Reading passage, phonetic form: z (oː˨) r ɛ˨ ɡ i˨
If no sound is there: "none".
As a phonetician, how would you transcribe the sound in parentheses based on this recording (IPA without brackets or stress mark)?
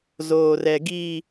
oː˨